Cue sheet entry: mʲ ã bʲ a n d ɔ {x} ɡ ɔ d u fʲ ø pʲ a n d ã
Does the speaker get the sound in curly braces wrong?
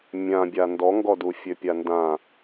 yes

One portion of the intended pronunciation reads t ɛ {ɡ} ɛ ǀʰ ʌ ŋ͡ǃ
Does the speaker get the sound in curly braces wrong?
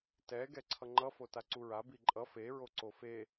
no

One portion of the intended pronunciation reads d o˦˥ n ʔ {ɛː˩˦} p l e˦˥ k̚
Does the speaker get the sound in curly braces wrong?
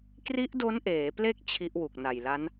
yes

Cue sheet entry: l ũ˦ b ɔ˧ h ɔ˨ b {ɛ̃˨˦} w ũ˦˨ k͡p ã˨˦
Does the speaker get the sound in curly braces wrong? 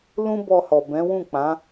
no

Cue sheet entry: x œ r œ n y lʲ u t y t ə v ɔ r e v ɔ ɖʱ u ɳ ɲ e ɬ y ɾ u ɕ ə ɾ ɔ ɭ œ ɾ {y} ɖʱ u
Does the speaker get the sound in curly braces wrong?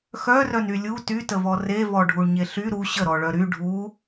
no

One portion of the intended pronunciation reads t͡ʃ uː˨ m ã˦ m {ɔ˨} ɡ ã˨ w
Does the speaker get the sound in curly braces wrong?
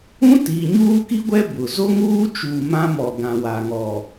no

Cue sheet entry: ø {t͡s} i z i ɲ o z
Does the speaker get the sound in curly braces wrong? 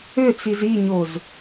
no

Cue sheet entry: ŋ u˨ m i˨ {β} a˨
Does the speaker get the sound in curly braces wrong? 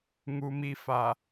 yes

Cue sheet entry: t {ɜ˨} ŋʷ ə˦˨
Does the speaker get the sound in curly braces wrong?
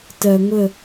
no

